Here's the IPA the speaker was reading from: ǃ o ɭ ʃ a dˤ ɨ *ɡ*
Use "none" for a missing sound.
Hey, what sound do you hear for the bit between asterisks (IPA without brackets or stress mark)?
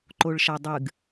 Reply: ɡ